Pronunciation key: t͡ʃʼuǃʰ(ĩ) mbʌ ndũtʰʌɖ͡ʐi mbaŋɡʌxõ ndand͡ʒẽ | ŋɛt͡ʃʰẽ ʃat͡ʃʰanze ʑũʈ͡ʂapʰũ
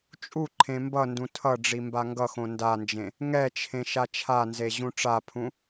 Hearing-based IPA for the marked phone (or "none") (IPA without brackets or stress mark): ẽ